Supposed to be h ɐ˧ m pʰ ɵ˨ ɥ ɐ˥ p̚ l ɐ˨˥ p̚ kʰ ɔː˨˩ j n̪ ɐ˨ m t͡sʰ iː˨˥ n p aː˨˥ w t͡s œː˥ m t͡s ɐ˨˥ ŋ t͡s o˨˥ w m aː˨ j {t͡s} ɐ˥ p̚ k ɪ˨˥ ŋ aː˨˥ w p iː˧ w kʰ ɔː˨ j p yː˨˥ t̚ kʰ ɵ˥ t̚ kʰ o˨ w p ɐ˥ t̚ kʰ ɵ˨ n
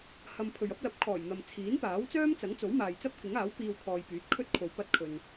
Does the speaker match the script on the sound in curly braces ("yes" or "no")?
yes